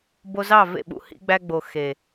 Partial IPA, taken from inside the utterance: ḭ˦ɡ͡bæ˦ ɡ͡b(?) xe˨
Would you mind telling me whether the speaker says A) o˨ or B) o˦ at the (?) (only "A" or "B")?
A